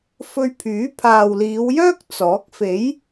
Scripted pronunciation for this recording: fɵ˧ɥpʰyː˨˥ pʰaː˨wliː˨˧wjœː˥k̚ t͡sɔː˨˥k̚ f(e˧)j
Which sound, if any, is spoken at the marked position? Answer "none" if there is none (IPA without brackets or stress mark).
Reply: e˨˥